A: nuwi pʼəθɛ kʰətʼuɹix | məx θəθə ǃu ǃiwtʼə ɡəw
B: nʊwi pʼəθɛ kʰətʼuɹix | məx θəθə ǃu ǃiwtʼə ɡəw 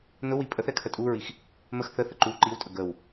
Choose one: B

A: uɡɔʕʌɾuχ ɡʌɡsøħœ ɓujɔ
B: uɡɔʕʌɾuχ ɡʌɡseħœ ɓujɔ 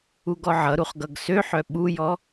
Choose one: A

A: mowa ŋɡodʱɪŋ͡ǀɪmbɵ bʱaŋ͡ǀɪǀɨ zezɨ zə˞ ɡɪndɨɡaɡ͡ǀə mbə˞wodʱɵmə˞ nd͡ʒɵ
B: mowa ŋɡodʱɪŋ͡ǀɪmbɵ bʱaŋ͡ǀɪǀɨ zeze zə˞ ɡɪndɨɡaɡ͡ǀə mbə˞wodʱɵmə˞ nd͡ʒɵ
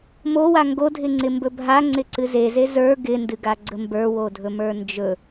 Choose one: B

